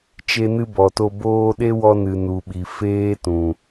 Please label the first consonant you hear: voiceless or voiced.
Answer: voiceless